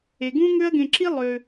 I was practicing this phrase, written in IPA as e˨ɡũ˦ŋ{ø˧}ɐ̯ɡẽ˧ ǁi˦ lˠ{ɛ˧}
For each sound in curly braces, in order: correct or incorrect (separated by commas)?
incorrect, incorrect